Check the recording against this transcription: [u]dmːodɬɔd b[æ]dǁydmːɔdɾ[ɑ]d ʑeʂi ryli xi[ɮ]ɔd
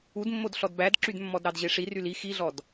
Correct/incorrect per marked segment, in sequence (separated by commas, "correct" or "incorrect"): correct, correct, correct, correct